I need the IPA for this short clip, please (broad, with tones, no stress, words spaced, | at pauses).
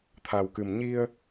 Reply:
t̪ʰa˨˩wkɨ˨˩m ɲi˧ə̯